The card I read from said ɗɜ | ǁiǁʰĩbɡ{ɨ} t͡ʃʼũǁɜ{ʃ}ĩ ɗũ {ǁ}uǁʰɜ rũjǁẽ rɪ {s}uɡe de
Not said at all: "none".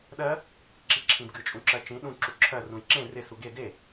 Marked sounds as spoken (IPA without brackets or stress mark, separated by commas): ɨ, t͡ʃ, ǁ, s